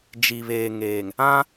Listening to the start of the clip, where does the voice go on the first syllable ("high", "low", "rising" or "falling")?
low